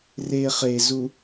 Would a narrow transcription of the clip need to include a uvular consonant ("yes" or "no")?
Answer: yes